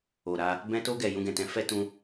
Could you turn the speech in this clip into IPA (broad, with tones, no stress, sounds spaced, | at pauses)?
o˨ ɾ a˧ | b ɛ̃˧ t o˧ ɡ ɛ˨ j ũ˧ ɡ ɛ̃˨ t ɛ̃˧ f ɛ˧ t ũ˧